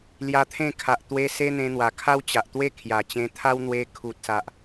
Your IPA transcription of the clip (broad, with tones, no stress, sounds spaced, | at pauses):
l j a˧ t̪ʰ ẽ˥˧ kʰ a˨ ʔ t̪ w e˧ s e˦ n̪ ẽ˧ n̪ w a˨˩ kʰ a˦ w t͡ɕ a˨ ʔ t̪ w e˥˧ kʰ j a˨˩ t͡ɕ ẽ˧ t̪ʰ a˦ w n̪ w e˧ kʰ u˨ t̚ s a˨ ʔ